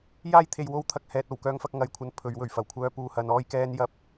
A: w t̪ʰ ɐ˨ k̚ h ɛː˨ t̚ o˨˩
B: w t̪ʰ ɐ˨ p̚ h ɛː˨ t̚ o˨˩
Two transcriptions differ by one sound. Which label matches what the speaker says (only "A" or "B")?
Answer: A